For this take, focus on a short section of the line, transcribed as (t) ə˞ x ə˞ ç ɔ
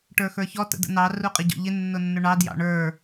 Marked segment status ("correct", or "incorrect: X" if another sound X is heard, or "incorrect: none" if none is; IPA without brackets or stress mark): incorrect: ʈ